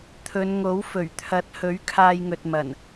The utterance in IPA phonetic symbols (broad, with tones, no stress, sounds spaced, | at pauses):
t̪ʰ ɵ˨˧ n ŋ o˨˥ w f ɵ˨˩ ɥ t̪ʰ ɐ˨˥ t̚ h ɵ˨˥ ɥ kʰ aː˧ j ŋ ɵ˨ t̚ m ɐ˨˩ n